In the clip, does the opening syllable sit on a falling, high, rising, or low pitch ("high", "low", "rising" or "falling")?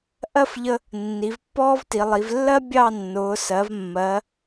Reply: falling